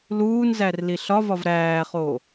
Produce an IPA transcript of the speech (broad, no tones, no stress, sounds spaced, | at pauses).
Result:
l uː n z æ r l i ɬ ɒ v ɒ v ɾ æː χ oː